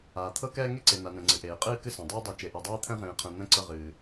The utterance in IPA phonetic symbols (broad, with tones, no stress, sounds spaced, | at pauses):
aː˨ t̪ʰ ɤ˦ k ɛː˦ ŋ e˦ ǀ e˨ n a˨ n ɛ̃˨ ŋ͡ǀ ɨ˨ ʔ eː˨ qʼ ɨː˦ k ɨ˦ s ã˨ dˤ ɨː˦ dˤ e˨ t͡ʃ e˨ ʔ ɤ˨ dˤ eː˦ t̪ʰ ɛ̃˦ ʁ ẽː˨ qʰ ɛ̃˨ n̪ ɛ̃˦ ǀ ɤ˦˨ ʁ ɨː˨